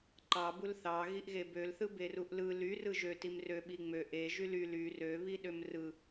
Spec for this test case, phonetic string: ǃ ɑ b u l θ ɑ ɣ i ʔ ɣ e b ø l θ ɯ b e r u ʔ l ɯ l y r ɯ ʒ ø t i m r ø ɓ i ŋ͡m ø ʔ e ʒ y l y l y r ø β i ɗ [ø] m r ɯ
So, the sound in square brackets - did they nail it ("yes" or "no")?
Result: yes